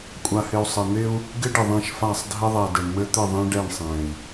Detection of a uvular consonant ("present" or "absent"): absent